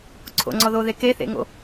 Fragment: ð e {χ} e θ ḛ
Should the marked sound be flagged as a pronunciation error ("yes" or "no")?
yes